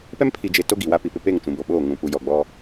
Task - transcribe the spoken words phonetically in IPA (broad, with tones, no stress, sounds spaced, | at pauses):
p ɛ˦ m pʰ i˨ d͡ʒ e˨ t o˦ ɡ i˨ w a˦ p i˨ p ɪ˦ p e˦˨ ŋ t͡ʃ ũ˨ b o˨ ɓ oː˦˨ ŋ ũ˨ p u˨ j ɔ˨ ɡ͡b ɔ˦